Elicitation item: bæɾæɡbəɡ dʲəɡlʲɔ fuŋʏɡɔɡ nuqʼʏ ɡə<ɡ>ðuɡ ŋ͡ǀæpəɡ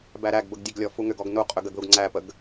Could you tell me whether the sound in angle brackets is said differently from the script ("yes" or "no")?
no